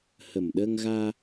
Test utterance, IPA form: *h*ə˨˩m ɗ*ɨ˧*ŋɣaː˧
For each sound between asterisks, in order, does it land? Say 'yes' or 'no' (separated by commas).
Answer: yes, no